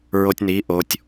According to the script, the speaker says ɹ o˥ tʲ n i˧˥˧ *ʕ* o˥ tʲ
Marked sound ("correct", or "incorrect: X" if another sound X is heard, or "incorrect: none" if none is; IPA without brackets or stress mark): incorrect: ʔ